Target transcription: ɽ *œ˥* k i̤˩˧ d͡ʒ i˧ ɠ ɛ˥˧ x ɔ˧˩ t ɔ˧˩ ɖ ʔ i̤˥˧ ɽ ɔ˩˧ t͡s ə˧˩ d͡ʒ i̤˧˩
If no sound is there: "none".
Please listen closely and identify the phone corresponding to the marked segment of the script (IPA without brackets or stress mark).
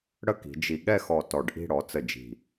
ə˥